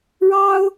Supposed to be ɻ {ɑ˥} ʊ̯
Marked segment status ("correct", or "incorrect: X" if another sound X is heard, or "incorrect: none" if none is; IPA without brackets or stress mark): correct